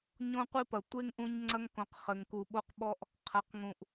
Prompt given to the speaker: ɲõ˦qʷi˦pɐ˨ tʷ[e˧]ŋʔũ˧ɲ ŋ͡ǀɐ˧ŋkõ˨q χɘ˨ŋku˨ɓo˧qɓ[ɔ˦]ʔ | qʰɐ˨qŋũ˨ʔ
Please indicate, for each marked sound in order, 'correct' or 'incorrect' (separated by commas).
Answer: incorrect, correct